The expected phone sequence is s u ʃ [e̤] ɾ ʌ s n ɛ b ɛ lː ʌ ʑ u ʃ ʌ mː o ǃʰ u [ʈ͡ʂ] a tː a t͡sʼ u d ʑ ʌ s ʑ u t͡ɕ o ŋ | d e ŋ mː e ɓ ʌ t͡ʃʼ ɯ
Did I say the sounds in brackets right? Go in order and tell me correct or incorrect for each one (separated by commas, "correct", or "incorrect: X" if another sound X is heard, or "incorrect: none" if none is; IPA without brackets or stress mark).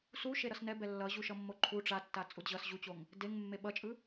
incorrect: e, correct